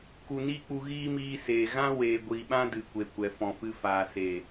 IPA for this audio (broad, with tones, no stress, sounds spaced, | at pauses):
k u˨ n iː˦ k͡p u˧ ɣ iː˦ m iː˧ s eː˨ ɣ ã˦ w eː˨ ɡʷ iː˨ ɓ ã˦ d ɨ˨ kʷ e˨ kʷ ɛ˨ f ɔ̃˨ f ɨ˧ f aː˨ s e˨